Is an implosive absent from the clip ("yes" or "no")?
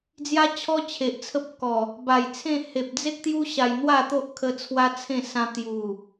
yes